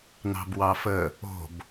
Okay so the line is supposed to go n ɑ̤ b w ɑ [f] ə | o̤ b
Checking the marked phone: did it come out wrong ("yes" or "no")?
no